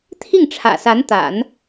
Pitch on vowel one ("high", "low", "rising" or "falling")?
falling